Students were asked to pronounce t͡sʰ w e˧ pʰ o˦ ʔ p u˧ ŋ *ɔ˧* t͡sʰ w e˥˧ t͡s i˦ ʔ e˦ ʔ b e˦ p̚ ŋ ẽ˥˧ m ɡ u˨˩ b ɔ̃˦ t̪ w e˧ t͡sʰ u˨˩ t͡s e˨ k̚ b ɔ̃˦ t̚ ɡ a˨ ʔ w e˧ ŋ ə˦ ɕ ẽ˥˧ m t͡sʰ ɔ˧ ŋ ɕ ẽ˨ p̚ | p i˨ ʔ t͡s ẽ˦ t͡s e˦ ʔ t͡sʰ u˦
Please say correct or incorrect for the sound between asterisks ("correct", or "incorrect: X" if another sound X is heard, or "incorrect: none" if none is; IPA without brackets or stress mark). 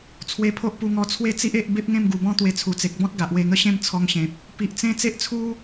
correct